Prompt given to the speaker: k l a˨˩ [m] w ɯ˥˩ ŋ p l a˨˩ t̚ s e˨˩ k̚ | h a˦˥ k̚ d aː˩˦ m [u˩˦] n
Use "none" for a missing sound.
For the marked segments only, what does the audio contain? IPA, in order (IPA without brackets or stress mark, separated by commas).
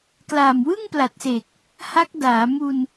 m, u˧